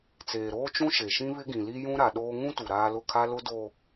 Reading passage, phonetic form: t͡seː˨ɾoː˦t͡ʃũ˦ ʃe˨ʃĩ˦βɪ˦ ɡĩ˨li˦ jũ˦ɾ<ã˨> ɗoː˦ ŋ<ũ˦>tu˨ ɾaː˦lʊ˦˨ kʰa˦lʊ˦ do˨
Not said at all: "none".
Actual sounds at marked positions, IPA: a˨, ũ˦

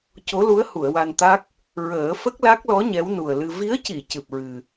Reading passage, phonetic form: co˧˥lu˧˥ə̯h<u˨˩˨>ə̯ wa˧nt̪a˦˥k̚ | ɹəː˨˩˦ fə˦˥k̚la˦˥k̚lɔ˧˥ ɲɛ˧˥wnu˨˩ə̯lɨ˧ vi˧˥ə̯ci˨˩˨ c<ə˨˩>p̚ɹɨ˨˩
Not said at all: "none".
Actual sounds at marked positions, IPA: u˨˩˨, ɨ˨˩

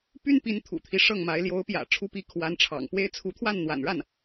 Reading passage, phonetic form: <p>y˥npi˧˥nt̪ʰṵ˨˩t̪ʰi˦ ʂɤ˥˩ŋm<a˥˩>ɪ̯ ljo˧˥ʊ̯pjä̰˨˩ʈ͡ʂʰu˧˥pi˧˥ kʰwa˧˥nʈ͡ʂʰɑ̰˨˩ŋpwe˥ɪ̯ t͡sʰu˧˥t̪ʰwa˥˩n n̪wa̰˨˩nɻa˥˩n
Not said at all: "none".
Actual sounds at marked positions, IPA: p, a˧˥

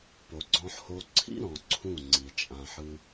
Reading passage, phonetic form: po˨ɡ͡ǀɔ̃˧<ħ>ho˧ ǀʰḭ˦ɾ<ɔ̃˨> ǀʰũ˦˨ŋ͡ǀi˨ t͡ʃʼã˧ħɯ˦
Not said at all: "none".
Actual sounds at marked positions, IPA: ħ, ɔ̃˨

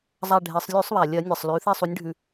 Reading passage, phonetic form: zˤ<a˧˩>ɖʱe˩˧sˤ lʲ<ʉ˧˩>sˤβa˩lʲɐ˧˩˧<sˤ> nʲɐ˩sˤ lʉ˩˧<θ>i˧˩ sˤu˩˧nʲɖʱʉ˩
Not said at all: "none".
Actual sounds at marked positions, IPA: a˧˩, ʉ˧˩˧, none, θ

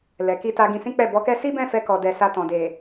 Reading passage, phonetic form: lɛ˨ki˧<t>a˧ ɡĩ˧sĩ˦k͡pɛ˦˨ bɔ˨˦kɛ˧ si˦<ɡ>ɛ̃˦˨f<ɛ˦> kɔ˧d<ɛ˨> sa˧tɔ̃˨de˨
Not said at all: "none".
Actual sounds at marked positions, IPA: t, b, ɛ˧, ɛ˧

